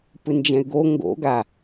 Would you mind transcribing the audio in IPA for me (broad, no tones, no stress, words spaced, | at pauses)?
pɯnd͡ʒɛ̃y̯ɡo ŋɡo̰ ɡa